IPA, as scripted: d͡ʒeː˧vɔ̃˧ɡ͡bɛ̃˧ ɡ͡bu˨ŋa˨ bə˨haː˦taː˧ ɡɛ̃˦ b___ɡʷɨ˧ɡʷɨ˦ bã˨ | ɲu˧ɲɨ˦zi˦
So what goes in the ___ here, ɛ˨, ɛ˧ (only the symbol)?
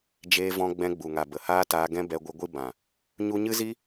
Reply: ɛ˧